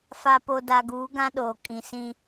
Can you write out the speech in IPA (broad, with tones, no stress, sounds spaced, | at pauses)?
f a˨ p o˨ d a˨ ɡ uː˨˦ ɡ ã˦ ɗ oː˨ kʼ ĩ˨ s ĩ˦